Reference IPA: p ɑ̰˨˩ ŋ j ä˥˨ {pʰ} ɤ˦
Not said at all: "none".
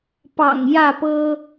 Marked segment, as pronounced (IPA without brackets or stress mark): p